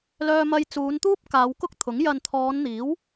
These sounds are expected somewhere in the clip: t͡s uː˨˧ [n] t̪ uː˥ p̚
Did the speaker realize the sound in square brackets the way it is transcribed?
yes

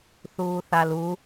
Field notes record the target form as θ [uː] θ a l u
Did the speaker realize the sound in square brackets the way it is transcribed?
yes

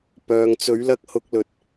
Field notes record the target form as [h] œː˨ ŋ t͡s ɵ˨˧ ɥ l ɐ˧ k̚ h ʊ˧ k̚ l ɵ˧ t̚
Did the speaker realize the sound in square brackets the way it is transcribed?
no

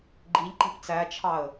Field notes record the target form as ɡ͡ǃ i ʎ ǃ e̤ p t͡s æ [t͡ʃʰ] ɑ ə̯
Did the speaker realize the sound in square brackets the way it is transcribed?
yes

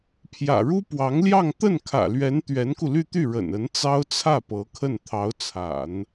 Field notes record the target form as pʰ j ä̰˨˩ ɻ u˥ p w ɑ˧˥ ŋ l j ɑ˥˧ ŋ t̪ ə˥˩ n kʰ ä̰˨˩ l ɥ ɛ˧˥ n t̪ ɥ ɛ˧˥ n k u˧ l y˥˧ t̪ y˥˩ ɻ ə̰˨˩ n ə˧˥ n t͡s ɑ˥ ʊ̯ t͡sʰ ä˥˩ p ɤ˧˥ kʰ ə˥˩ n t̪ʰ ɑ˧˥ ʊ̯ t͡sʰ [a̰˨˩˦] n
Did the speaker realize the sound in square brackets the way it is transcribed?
yes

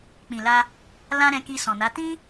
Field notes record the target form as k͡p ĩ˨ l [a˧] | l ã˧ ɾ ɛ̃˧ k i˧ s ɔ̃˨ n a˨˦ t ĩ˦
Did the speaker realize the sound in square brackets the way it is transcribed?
yes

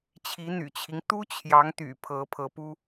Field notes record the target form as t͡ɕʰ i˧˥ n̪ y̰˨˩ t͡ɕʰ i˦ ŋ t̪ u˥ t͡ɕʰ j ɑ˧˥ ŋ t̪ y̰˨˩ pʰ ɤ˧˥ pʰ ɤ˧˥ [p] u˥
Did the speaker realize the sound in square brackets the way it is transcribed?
yes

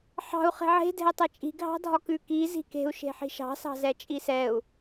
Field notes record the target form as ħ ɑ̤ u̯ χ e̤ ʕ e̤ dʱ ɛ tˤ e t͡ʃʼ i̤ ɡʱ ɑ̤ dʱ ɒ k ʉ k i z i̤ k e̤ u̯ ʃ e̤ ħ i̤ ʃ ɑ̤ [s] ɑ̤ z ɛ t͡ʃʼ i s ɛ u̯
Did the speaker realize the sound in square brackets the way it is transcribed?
yes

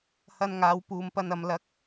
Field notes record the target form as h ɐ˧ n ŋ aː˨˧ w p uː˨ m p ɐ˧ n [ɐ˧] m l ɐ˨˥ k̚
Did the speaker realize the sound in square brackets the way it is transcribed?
no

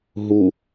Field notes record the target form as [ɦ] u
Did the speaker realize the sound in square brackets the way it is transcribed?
yes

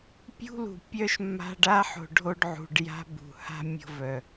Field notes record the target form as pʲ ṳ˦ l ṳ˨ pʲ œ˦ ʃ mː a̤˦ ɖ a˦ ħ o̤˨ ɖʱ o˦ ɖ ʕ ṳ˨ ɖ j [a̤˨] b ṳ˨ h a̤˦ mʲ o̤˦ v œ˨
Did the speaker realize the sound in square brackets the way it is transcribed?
no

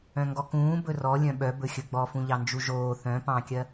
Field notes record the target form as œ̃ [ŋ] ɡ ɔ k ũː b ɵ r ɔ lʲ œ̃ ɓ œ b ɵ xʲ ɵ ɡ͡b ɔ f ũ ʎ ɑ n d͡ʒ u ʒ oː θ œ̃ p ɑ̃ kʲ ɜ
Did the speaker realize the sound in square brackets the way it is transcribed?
yes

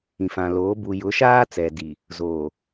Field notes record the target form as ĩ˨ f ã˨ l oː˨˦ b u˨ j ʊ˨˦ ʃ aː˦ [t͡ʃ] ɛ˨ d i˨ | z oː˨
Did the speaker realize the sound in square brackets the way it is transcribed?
no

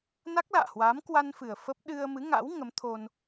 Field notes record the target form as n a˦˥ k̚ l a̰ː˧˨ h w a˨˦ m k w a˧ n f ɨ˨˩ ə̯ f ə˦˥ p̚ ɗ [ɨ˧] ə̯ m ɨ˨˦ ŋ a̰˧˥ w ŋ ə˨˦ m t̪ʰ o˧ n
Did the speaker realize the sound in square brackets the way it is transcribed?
yes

